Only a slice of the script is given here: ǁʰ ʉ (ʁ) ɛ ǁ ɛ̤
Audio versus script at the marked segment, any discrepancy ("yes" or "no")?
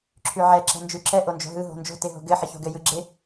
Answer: yes